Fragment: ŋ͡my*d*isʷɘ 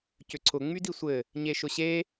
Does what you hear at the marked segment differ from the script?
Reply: no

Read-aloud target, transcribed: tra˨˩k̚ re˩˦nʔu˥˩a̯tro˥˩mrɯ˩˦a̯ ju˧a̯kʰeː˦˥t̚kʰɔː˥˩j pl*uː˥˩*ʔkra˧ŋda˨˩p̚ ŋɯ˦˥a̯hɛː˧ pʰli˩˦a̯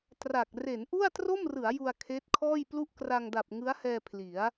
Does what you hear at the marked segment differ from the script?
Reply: yes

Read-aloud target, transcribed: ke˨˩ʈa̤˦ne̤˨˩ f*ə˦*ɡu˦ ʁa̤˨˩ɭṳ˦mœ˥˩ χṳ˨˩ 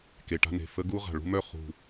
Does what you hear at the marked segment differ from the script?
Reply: no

